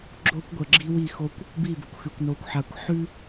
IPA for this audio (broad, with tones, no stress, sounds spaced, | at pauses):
ɡ͡ǁ o˦ kʷ ɡʷ ə˨ ɡ͡ǁ i˦ w i˦˨ x o˦ kʷ | b i˦˨ b ə˨ kʷ x ʉ˨ kʷ n o˨ kʷ ħ a˨ kʷ ħ ʉ˦